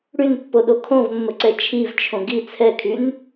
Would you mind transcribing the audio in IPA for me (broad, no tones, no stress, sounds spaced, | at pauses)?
ɽ y n pː o ɗ o kʰ õ v mː ə ǀ ɛ t͡ʃʰ i v t͡ʃʰ õ ɡ i t͡sʰ ɛ kʰ y n